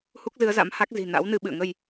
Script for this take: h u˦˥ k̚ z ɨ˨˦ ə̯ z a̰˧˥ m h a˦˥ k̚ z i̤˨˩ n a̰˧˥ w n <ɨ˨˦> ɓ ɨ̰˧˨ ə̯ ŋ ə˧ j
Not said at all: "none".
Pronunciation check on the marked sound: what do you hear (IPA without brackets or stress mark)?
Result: ɨ˨˦